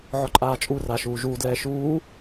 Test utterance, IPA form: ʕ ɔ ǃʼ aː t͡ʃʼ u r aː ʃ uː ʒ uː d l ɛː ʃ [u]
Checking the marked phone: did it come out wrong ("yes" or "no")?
yes